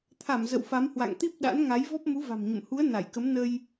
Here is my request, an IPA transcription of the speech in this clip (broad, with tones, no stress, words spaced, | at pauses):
t̪ʰa˧˩m zə̰˧˨wfa˨˦mhwa̰˧˨ŋ t̪i˦˥p̚ɗa̰˧˥nŋa˨˦j vɔ˦˥p̚mu˨˦va̤˨˩mɲə̰˧˨m hu˨˦ə̯ na˧˩jkə˨˦m nə˧j